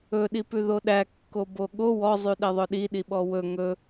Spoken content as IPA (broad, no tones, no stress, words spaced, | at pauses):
ɵɗipʉ ðoɗæ kːoboɠo wɔzˤy ɗɛðˤœɗi ɗiɓɔwɵ ŋɵ